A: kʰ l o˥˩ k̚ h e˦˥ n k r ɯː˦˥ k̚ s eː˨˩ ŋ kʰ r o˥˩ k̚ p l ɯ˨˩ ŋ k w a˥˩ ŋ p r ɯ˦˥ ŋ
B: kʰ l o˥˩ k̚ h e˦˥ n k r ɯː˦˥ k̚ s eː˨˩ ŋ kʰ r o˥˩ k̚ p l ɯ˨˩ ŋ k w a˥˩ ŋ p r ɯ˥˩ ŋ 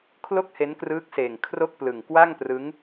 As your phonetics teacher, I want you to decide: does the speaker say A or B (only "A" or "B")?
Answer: A